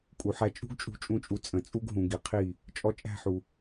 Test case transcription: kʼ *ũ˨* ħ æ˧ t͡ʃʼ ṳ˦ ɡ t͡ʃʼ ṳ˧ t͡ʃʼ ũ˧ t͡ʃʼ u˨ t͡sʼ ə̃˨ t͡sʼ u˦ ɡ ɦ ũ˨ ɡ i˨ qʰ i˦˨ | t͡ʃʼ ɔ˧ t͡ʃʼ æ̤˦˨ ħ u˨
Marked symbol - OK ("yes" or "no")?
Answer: no